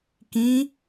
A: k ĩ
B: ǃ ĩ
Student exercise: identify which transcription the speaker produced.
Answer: A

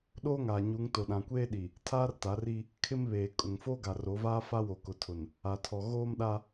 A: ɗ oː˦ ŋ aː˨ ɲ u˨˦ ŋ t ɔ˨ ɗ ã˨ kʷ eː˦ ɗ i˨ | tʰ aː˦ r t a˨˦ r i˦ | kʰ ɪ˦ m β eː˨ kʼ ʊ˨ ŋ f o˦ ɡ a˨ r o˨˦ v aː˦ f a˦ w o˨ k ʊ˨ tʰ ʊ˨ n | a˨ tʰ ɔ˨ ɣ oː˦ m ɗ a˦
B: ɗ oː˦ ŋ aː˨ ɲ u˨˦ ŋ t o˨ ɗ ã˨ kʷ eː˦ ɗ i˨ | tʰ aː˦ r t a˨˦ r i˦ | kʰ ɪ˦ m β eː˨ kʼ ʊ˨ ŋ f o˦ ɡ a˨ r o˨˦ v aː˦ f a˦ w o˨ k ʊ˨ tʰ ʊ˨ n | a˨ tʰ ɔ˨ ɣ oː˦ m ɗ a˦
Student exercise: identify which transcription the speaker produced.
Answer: B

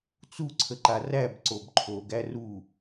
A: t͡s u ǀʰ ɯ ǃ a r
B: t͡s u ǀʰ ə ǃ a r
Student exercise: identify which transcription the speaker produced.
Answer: B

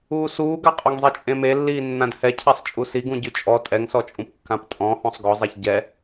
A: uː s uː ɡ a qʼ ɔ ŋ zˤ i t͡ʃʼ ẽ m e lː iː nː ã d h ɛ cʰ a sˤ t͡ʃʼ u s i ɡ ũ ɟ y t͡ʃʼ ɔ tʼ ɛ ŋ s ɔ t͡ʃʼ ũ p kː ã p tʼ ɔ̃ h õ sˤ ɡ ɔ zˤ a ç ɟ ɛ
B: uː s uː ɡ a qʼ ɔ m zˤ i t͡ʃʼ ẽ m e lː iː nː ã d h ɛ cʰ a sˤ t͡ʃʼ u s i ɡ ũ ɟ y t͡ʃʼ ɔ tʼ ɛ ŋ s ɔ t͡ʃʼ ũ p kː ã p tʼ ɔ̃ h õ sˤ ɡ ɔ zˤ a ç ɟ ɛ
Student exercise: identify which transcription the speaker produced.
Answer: A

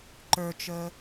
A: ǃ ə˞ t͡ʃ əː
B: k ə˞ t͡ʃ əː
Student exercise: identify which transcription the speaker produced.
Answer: A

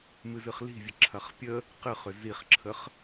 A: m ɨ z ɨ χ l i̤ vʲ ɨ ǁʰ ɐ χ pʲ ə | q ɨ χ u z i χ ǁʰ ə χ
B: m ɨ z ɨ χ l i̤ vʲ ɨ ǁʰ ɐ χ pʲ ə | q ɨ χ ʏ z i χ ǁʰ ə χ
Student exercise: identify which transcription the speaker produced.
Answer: B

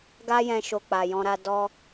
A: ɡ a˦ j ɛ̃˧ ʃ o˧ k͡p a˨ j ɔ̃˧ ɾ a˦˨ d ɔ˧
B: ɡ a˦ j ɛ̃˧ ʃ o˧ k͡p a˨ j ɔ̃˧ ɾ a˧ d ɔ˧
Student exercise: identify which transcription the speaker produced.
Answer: B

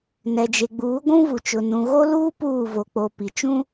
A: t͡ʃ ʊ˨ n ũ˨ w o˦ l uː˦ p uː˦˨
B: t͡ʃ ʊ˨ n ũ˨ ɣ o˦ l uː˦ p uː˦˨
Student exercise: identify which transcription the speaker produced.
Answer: B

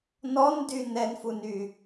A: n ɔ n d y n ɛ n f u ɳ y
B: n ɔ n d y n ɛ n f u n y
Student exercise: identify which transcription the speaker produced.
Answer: B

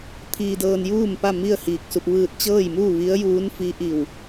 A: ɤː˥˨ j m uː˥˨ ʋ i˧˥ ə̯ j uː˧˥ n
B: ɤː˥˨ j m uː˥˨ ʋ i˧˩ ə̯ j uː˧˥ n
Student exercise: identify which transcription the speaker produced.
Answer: A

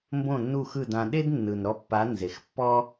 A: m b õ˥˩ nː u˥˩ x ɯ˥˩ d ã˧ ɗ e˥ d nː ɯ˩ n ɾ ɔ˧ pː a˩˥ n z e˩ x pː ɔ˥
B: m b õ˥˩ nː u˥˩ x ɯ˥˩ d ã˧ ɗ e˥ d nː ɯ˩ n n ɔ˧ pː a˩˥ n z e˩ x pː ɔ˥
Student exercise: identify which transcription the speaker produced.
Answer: A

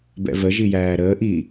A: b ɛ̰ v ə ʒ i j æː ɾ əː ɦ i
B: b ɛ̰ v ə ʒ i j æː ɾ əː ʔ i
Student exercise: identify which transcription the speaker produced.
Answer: B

